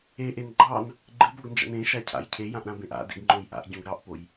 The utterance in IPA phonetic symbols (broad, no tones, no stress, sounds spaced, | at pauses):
e ʔ e n ɡ͡ǃ ɑ n | ɡ͡ǃ ɨ b o ɡ n d͡ʒ ɑ̰ n ẽ ʃ a cʰ a̰ j cʰ e j ã ʔ ɾ ã b ẽ ʔ a̰ d ḛ ɡ ŋ͡ǃ õ j ʔ a̰ ʔ ɟ õ ɡ ɾ ɑ ʔ p o j